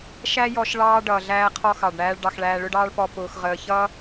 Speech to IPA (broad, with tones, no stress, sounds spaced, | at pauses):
ʃ æ˥ j ɔ˧ ʃ ɭ ɑː˧ ɖ ʌː˩ ɮ æː˧ qʰ ɔ˧ x ɑ˩ ɖ ɳ æː˧ ɭ ɖ ɑ˧ x ɭ æː˧ ɭ ʊ˥ ɖ ɑː˥ ɭ p ɔ˧ p ʊː˧ x ʁ əː˧ ç ʌː˥